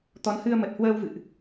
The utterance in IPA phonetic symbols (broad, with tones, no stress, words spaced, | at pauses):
t̪ɔ˨˦nhɨ˧ə̯mə˨˩t̚ hwəː˧wvɨ̰˧˨ʔ